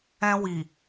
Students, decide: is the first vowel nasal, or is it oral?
nasal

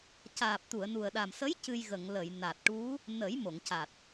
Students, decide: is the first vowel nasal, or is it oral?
oral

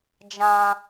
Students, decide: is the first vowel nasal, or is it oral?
nasal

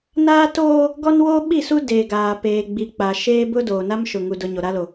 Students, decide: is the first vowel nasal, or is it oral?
oral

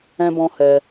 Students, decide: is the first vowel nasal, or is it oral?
nasal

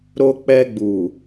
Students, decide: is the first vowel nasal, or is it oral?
oral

